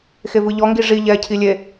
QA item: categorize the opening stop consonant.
plain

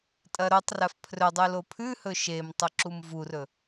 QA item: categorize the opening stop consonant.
ejective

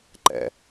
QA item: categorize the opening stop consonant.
click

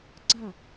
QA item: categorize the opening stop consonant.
click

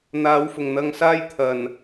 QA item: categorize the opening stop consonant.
aspirated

